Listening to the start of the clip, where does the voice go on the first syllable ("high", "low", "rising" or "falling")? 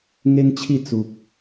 high